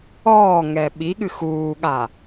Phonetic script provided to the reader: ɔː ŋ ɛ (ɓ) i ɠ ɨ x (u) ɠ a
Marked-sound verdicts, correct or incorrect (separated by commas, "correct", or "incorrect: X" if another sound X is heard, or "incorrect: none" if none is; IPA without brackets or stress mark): correct, incorrect: uː